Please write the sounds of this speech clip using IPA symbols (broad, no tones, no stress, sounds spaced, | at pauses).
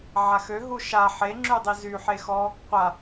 ʕ a x ø ɦ u ʃ a ħ e ŋ͡ǁ y dˤ i z y ħ e x ɔ | qʷ a